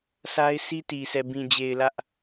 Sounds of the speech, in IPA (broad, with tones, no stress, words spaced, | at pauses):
sʰa˦ɪ̯si˦ti˨sɛ˨ bĩ˨d͡ʑe˨ɪ̯ lä˦ʔ